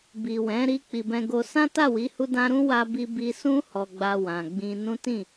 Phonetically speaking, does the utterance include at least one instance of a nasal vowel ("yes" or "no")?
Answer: yes